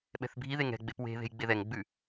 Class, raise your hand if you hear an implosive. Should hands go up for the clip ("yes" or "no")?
yes